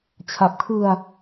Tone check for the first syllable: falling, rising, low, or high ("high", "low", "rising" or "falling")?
low